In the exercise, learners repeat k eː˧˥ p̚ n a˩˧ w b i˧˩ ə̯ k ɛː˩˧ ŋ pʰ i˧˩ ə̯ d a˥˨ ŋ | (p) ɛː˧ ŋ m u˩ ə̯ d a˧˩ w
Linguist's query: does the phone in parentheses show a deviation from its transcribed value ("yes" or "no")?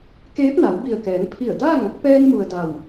no